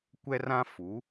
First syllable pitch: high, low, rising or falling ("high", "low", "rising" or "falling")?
high